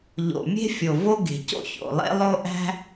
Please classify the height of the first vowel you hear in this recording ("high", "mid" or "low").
mid